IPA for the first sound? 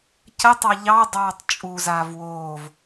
c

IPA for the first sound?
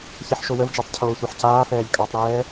ç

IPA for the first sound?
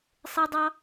sˤ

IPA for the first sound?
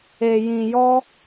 e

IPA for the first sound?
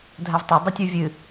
dʱ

